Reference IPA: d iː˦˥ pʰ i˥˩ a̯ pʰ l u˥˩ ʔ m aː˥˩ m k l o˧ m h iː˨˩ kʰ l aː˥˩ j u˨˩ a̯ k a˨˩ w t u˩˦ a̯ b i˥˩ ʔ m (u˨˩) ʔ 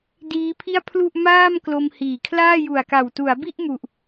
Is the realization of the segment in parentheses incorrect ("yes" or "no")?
no